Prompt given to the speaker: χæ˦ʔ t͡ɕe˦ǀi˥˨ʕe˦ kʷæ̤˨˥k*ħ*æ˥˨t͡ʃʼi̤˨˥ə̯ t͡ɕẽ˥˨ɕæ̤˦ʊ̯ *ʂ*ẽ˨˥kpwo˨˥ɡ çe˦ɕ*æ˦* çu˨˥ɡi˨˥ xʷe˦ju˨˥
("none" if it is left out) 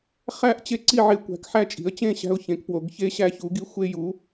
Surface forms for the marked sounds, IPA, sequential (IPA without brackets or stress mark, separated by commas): ħ, ç, æ˦